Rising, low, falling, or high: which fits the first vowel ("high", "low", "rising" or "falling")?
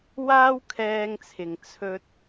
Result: high